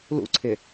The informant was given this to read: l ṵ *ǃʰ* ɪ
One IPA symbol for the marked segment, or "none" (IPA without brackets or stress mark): ǀʰ